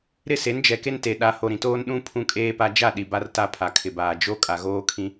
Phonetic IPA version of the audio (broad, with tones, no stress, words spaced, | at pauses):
ɾɪ˦˨se˨˦nd͡ʒɛ˨ke˦n te˨ɗa˨˦ ho˨ɾĩ˨toː˦n ɗũ˦ pʰũ˦kʼeː˦pa˦ d͡ʒa˦˨ ɗi˨ba˦rta˦˨ pʰa˨kʰɪ˨baː˨ d͡ʒo˦ kʼa˨ɣoː˦kʰĩ˦